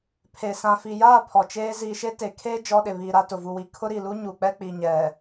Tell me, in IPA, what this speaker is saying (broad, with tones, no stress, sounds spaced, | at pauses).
pʰ e˨ s ã˨ f i˨ j aː˦˨ pʰ ɔ˨ t͡ʃ eː˦ z iː˨ ʃ e˦ t e˨ kʰ eː˦ d͡ʒ ɔ˦ ɗ ɪ˨ β iː˨ ɾ a˦ t ʊ˨ v u˨ w i˨ kʰ ʊ˦ ɾ i˨ l u˦ ɲ u˨ k͡p ɛ˦ k͡p i˨ ɲ ɛ˨